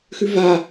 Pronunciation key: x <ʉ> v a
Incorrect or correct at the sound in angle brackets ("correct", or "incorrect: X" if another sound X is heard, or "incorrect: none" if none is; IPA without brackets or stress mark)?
correct